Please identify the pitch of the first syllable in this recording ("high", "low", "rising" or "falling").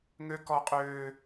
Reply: high